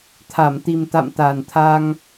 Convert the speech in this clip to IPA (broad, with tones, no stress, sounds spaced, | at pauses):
t̪ʰ a˧˩ m t̪ i˨˩ m t̪ a̰˧˨ m t̪ a˨˩ n t̪ʰ a˧ ŋ